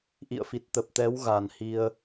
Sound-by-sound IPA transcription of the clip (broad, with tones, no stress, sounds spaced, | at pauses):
ʔ ḭ˧˨ ə̯ f i˨˩ t̚ t̪ ə˨˩ p̚ t̪ ɛ˨˦ w ɣ a˨˩ n h i˧ ə̯